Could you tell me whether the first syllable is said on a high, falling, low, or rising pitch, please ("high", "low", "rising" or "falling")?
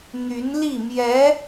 rising